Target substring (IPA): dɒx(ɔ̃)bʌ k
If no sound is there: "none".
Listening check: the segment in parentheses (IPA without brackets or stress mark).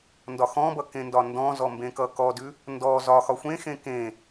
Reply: ɔ̃